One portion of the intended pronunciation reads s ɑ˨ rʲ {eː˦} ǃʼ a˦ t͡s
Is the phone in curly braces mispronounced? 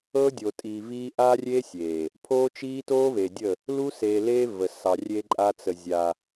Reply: no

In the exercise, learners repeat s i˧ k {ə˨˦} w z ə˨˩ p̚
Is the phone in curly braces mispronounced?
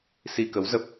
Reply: no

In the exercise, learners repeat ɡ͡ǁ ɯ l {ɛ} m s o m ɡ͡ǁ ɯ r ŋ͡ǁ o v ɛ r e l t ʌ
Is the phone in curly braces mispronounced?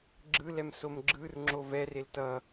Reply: no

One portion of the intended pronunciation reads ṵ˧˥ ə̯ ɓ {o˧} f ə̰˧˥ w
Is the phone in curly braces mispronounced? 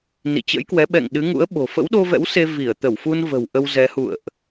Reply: yes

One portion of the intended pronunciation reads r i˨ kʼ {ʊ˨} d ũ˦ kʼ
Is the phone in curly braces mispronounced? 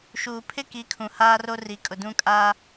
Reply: no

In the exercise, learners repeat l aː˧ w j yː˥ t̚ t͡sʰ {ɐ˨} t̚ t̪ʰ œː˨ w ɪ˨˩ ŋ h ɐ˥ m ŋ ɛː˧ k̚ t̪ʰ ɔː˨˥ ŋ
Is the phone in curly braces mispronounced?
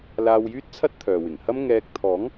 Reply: yes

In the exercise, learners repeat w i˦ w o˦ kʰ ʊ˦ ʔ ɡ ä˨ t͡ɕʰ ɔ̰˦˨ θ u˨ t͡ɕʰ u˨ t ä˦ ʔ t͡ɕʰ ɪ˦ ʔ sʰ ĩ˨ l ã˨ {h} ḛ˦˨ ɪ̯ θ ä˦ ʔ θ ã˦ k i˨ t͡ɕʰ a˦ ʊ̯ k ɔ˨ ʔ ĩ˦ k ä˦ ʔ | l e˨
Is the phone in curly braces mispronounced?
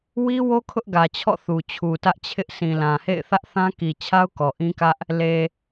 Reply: no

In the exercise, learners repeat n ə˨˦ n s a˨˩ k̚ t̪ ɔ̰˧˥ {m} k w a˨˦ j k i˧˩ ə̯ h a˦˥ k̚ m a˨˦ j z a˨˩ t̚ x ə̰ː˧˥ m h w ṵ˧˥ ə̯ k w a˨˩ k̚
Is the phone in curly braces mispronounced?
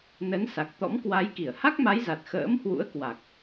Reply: no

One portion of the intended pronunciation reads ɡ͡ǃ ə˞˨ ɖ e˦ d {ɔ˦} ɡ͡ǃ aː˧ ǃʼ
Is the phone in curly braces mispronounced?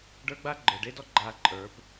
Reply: no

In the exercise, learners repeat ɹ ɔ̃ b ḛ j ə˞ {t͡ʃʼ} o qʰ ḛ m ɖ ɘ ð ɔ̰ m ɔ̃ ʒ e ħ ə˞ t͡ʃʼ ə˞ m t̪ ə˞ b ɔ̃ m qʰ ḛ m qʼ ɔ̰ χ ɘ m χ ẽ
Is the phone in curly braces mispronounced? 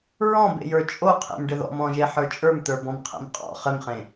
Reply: no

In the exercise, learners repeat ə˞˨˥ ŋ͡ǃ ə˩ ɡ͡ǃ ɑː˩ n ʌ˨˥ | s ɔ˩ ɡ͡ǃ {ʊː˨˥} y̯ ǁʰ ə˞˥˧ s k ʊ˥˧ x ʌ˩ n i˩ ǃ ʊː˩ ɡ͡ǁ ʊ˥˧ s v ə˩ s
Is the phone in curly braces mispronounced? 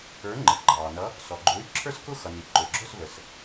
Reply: no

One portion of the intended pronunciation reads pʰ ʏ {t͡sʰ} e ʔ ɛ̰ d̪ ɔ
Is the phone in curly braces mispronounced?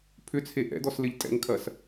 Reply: no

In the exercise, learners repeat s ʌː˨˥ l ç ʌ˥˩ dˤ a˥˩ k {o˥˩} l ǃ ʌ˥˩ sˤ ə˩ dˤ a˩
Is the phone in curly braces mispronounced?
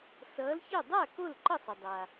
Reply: no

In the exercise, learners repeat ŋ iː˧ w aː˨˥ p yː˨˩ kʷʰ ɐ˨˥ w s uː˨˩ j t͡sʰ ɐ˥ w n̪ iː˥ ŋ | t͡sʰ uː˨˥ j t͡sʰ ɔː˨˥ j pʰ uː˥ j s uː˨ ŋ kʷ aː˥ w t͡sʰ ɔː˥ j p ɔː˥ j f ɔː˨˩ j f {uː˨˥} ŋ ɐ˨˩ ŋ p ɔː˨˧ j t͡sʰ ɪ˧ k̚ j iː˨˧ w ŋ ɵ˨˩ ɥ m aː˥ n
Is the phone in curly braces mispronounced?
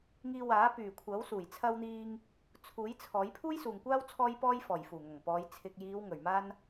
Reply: yes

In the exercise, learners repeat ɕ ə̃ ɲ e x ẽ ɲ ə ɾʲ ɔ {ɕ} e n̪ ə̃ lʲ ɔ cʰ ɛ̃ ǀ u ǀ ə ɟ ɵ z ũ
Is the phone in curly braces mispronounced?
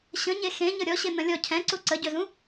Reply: no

